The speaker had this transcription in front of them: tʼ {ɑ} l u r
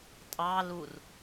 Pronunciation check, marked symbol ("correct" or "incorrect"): correct